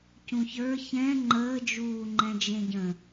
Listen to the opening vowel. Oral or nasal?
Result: nasal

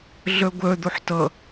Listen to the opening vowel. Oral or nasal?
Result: oral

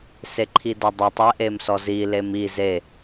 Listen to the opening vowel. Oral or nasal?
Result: oral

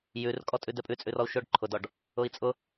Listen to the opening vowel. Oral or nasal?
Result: oral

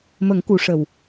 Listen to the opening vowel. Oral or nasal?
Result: oral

